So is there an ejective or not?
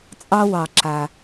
yes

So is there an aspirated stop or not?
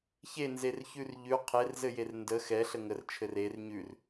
yes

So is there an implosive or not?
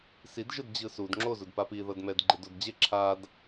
no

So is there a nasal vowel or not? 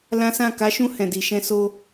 yes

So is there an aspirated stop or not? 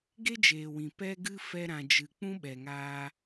no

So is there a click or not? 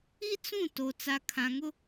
no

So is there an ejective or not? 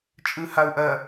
yes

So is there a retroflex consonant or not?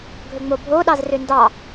no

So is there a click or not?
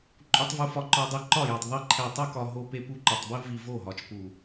yes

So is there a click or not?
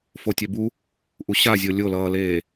no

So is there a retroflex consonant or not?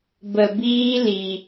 no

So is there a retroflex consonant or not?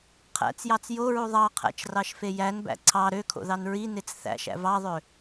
no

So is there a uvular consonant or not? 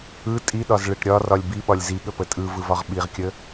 yes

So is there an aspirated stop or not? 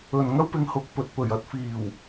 no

